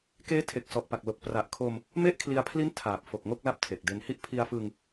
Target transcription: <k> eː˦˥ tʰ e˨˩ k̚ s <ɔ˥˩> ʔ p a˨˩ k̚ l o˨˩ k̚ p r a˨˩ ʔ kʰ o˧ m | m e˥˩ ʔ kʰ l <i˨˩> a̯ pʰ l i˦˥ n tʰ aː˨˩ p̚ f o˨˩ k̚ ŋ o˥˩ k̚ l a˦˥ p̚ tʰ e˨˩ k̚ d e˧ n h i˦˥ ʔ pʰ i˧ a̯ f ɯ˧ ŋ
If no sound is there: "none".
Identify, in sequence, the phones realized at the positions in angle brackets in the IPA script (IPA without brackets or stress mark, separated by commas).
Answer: k, ɔ˨˩, i˧